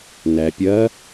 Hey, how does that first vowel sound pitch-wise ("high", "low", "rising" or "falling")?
low